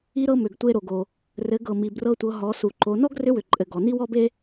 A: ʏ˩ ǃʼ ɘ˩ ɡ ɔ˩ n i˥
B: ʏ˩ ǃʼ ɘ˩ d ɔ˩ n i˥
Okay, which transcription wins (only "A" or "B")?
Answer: A